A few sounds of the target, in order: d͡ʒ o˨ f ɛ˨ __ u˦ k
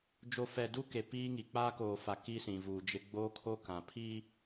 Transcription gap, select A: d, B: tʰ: A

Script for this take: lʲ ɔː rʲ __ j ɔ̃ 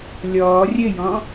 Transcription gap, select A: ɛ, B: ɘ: B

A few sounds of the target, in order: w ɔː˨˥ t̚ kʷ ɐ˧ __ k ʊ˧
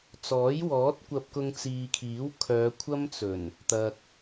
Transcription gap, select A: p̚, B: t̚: A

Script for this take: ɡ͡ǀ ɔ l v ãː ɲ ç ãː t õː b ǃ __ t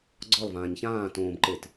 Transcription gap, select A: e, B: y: A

